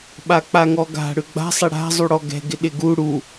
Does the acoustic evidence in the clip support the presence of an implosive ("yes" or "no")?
yes